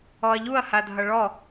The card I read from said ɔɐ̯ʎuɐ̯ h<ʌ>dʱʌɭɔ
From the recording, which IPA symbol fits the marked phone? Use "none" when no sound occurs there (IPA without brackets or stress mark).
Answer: a